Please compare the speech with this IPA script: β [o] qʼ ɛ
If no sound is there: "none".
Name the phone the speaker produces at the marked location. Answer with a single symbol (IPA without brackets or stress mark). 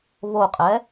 o